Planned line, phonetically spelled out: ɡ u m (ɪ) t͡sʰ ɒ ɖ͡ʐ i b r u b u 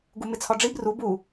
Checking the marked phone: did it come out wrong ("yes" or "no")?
no